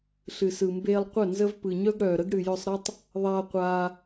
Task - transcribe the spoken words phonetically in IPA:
ɬ ɨ˨ s ɯ˨ m b eː˧ lˠ qʷ œ˦˨ n z ə˧ v p ɯ˨ ɲ œ˦ ɡ ɽ œː˨ ɾ ə˦ ɡ ɽ ɨ˨ j œ˧ sˤ ɾ ɐ˦ tˤ | ðˤ aː˧ qʷ aː˧

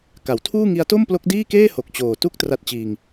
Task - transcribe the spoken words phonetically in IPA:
k a˩˦ w tʰ uː˥˩ ŋ i˦˥ a̯ t o˥˩ m p l o˦˥ k̚ d iː˥˩ k eː˥˩ h o˨˩ k̚ t͡ɕ oː˨˩ t u˦˥ k̚ t r a˦˥ t̚ t͡ɕ iː˧ ŋ

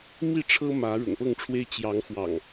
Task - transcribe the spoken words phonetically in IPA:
m i˥˨ ʈ͡ʂʰ ɤ˦ m ä˨˦ ɻ ʊ̰˨˩ ŋ p ɤ˥˨ ŋ ʈ͡ʂʰ w e˦ ɪ̯ t͡ɕ j ɑ˨˦ ŋ x w ɑ̰˨˩ ŋ

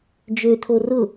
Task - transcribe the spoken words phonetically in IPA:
d͡ʒ ø tʰ o r ʊ

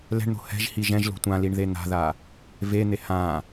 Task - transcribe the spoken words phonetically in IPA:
l ɛ̤ ɳ n̪ o̤ h ɛ̤ ʒ h i ʒ ɛ̃ ʒ l o̤ tʷ ã l i ɳ ð e n̪ a̤ ð a | v e n̪ e h ã

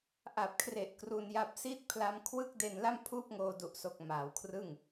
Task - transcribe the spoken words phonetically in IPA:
ʔ a˨˩ p̚ kʰ r e˨˩ ʔ k r u˧ n j a˦˥ p̚ s i˦˥ t̚ pʰ l a˦˥ m kʰ w ɯ˥˩ k̚ d e˧ n l a˥˩ m pʰ uː˥˩ p̚ ŋ oː˧ d u˨˩ ʔ s o˨˩ k̚ m aː˩˦ w kʰ r ɯ˥˩ ŋ

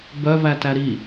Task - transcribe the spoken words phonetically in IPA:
b œ v æ t æ ɾ i

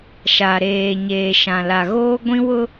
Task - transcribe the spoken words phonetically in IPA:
ʃ a˨ ɾ eː˨ ɲ eː˨ ʃ ã˨ l a˨ ɣ oː˦ ɡʷ ĩ˦ w ʊ˦

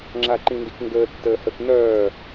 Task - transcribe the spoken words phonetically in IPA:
ŋ͡ǁ a ǃ ĩ n d i k ŋ ɡ əː tː əː h ə k n̪ œː

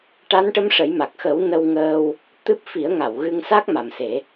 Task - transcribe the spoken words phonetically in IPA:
ʈ a˧˥ n ʈ ə˧˥ m ʂ ə˨˩˦ j m a˨˩ k̚ x ə˨˩˦ w n ə˧ w ŋ əː˧ w | t̪ ɨ˦˥ p̚ f i˨˩˦ ə̯ ŋ a˨˩˨ w ɣ ɨ˧ ŋ s a˦˥ k̚ m a˨˩ m s e˨˩˦

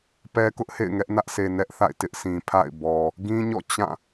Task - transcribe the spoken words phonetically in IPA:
p ɛ˦ k ʊ˦ ʔ h ḛ˦˨ ɪ̯ ŋ ɛ˦ ʔ n ä˦ ʔ s e˨ n ɛ˦ ʔ θ a̰˦˨ ɪ̯ t ɪ˦ ʔ sʰ ĩ˨ pʰ a̰˦˨ ɪ̯ b ɔ˨ | ɡ ĩ˦ ɲ ɔ̰˦˨ t͡ɕ ã˦˨

